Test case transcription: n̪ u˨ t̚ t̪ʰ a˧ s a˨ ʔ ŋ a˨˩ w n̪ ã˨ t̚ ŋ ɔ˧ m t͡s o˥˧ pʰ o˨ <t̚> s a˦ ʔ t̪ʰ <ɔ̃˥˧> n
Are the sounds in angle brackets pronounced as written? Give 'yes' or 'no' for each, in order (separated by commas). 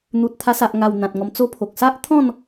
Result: no, yes